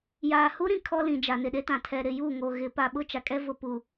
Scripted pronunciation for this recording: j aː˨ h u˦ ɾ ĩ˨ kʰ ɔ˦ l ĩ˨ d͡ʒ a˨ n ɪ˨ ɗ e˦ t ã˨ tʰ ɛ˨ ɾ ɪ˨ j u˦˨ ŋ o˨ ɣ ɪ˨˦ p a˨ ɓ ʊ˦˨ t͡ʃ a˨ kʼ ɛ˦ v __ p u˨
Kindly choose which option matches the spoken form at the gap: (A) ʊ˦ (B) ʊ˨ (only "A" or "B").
B